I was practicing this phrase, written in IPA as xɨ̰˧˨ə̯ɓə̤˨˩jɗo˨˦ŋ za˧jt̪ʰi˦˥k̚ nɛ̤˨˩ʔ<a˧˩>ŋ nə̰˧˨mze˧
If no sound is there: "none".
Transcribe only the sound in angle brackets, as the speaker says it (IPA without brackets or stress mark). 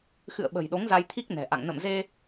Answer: a̰˧˨